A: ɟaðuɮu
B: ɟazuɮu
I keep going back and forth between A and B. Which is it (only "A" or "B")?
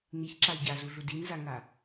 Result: B